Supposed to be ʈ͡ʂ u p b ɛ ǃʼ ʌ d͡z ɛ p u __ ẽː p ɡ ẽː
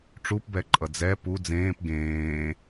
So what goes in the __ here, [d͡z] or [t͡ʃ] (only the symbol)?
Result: d͡z